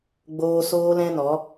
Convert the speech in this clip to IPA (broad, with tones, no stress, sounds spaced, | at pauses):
ɡ͡b oː˧ s oː˦ l ɛ̃˦ n ɔ˨˦